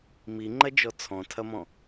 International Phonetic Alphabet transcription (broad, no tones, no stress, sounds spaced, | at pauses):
m i ŋ͡ǃ ɐ d͡ʒ ɔ t͡sʰ ɔ̃ tʰ ɐ m ɔ̃